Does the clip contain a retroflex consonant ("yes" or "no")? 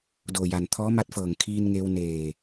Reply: no